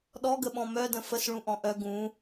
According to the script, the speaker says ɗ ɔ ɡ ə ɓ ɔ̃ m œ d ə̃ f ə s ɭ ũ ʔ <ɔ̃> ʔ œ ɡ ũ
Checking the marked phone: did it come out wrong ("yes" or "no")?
no